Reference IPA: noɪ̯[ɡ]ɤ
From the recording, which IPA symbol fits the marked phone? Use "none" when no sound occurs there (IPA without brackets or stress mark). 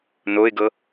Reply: ɡ